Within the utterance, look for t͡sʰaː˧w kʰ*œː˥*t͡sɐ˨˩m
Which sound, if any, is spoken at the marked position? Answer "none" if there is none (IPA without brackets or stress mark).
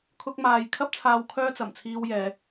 œː˥